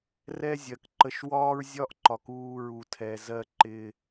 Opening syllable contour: high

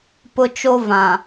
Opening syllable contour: high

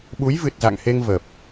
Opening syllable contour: rising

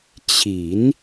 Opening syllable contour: low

